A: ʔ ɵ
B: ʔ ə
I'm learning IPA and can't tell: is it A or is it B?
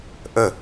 B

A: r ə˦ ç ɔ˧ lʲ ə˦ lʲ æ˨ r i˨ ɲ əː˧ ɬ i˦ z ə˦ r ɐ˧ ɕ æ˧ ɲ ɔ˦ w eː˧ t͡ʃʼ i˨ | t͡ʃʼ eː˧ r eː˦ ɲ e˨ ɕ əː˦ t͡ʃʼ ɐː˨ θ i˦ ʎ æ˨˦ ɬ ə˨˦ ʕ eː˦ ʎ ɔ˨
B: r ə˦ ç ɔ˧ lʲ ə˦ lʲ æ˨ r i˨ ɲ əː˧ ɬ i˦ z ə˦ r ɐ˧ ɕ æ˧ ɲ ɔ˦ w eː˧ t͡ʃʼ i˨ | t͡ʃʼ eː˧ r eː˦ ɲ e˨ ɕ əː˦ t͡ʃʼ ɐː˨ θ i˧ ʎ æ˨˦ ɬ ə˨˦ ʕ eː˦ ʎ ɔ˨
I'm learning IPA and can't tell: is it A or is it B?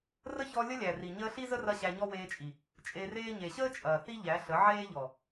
A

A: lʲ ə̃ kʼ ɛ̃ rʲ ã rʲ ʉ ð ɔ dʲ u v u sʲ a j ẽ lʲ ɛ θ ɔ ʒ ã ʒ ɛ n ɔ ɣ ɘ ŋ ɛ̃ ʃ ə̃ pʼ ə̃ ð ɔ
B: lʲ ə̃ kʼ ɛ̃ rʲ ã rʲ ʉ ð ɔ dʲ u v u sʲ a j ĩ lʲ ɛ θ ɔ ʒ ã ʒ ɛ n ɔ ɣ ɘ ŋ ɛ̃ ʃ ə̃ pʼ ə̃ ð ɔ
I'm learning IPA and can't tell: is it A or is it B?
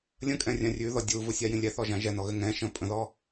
B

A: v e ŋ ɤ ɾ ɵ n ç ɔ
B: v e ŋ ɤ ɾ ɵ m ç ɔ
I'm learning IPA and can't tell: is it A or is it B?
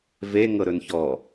A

